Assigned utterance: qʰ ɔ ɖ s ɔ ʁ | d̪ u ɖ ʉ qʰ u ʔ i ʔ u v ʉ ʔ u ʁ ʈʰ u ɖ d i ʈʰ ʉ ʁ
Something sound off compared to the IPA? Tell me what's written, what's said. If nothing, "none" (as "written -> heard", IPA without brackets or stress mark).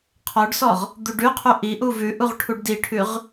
none